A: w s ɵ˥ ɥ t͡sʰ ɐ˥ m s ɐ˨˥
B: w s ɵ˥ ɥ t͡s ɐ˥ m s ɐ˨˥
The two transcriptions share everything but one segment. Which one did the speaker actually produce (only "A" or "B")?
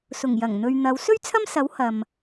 A